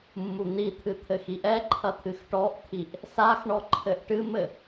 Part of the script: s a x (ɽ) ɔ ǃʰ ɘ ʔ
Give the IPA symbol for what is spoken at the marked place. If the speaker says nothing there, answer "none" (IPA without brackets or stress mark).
ɳ